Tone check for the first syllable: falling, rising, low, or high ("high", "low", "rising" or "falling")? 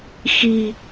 low